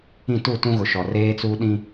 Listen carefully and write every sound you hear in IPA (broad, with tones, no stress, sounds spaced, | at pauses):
ĩ˦˨ t u˦˨ t ũ˦ ɣ ʊ˨ ʃ ɔ˨ r eː˦ t͡s uː˦ ɗ ĩ˦